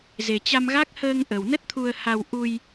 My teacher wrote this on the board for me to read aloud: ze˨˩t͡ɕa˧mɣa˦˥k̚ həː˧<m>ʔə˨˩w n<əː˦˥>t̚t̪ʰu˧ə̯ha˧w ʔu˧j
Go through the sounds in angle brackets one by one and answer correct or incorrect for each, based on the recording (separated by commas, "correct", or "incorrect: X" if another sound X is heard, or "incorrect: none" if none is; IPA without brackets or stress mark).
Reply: incorrect: ŋ, incorrect: ə˦˥